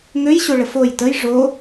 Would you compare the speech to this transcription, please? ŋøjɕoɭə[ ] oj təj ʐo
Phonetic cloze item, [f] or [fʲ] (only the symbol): f